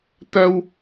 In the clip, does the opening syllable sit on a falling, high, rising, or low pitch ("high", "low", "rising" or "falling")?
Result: high